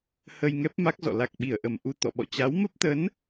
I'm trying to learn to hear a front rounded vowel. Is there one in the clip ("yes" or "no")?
no